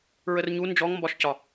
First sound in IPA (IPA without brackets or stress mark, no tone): ɹ